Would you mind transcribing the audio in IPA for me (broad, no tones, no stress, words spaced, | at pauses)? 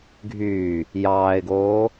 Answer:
ɡʱyː | jɑːɪ̯ɡoː